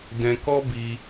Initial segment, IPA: d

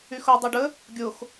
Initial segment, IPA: y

